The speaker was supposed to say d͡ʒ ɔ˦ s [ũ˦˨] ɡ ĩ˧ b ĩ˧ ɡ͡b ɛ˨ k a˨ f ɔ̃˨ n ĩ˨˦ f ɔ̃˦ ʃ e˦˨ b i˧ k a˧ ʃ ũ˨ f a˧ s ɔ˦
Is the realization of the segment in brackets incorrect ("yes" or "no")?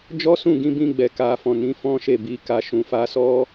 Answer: no